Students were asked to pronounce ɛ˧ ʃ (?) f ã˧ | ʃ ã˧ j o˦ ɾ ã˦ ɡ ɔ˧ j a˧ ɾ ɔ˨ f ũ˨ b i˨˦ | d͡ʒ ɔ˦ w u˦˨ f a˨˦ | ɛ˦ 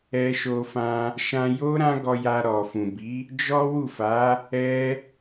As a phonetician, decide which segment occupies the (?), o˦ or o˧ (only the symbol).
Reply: o˧